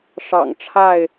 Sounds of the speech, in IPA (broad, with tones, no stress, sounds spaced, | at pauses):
ʂ ɑ̰˨˩ ŋ ʈ͡ʂʰ a˥˨ ɪ̯